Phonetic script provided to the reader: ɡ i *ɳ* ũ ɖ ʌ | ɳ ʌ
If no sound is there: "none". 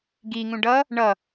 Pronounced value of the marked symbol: ŋ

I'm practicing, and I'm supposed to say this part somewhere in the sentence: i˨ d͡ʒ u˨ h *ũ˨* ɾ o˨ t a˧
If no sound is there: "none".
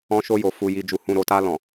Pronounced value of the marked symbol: ũ˨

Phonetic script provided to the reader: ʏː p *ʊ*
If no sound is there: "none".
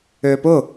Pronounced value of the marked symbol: ʊ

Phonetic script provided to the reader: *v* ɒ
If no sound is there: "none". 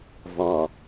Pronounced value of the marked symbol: v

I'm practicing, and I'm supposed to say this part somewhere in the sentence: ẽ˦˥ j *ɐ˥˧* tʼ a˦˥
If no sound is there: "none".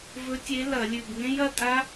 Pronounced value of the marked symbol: ɐ˥˧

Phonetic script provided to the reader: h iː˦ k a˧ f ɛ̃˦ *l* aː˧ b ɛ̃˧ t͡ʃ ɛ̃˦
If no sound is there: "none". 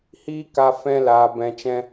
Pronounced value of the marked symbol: l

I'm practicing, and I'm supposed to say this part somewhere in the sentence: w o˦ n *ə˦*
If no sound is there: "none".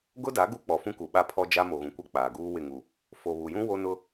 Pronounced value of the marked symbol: ʊ˦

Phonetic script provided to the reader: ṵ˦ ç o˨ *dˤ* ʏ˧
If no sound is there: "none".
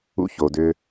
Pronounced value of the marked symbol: d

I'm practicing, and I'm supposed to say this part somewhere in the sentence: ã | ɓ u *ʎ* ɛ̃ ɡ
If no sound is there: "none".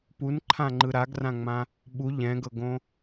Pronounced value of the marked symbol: ʎ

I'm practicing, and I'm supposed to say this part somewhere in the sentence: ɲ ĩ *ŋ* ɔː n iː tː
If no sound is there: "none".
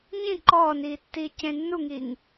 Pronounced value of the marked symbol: ǃ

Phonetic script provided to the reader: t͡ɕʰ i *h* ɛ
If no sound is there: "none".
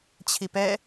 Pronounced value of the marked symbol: p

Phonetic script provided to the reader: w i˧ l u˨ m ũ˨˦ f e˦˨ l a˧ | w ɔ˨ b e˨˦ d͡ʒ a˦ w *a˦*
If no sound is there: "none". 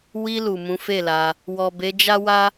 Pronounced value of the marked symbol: a˦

